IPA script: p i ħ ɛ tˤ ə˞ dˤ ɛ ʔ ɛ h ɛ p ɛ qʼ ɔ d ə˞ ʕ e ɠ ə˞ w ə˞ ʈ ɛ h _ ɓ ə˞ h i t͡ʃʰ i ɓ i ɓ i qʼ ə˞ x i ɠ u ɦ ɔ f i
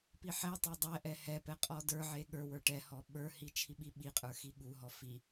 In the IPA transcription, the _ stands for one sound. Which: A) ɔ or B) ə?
A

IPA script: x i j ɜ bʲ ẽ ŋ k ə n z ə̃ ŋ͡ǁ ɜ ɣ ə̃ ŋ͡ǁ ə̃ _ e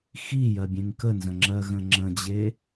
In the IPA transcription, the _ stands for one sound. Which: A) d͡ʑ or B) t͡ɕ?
A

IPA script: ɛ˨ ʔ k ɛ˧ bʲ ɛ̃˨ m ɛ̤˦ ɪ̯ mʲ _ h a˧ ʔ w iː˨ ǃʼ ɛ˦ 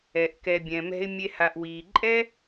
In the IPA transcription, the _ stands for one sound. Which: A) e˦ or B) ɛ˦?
A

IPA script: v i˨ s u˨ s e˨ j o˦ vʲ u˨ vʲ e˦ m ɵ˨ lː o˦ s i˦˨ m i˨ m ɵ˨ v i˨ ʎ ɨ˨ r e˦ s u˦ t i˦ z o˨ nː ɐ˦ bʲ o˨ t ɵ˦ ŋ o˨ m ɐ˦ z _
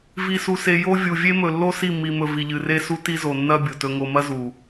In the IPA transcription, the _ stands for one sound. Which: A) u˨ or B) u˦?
A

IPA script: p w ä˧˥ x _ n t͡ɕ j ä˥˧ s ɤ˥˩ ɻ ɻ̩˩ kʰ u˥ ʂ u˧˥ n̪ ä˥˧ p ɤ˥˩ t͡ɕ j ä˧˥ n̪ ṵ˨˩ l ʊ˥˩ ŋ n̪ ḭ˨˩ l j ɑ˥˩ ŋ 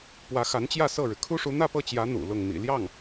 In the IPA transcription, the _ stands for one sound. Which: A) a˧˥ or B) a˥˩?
A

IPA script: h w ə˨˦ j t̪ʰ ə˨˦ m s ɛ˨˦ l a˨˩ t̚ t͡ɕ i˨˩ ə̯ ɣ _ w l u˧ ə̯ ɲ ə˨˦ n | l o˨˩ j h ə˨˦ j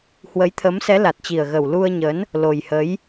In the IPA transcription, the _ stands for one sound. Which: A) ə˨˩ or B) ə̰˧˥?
A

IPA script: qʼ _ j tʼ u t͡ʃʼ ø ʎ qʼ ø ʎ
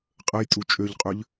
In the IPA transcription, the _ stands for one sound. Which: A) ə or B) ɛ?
A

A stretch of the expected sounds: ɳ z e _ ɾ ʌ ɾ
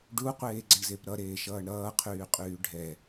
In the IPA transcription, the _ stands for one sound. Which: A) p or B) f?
A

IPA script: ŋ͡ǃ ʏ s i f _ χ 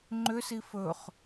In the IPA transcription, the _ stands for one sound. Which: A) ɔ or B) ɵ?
B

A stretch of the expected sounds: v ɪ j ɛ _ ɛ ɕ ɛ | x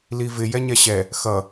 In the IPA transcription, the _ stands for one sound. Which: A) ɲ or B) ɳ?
A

